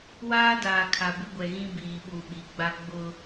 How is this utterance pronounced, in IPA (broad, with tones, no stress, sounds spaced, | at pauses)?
w aː˦ d aː˨ kʰ a˨ b ɪ˦ ɡʷ ɛ˨ ɣ ĩ˦ b iː˨ ɓ u˨ ɓ i˨ ɡ͡b a˦ ɡ͡b ʊ˦